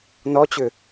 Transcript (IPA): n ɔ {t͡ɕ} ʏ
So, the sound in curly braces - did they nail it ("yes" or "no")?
yes